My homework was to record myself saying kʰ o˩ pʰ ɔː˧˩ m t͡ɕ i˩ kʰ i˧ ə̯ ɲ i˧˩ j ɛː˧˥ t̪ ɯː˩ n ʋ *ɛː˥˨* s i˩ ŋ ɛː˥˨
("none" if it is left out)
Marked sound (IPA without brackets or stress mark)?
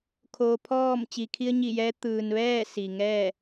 ɛː˥˨